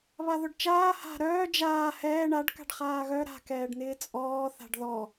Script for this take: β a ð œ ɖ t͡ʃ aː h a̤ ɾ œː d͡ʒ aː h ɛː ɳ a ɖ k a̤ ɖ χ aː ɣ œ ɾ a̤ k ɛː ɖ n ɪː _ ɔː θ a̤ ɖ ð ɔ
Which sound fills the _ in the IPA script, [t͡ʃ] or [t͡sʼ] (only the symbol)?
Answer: t͡sʼ